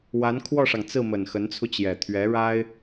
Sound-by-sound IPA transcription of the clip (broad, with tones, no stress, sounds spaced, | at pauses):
w a˧˥ n kʰ w ɔ˥˩ ʂ ɑ˩ ŋ t͡s ɹ̩˥˩ m ə˨˩ n x ə˧˥ n t͡sʰ u˧ t͡ɕ j ɛ˨˩ t̪ʰ ɥ ɛ˧˥ ɻ a˥ ɪ̯